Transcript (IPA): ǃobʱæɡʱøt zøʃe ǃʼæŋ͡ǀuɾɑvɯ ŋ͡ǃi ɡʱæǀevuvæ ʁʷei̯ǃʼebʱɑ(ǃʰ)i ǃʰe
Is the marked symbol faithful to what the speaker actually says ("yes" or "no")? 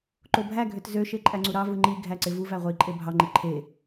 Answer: no